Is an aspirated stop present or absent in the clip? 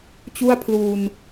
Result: present